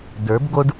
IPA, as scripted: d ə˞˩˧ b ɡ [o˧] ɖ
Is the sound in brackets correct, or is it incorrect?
correct